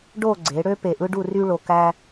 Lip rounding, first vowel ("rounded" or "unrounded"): rounded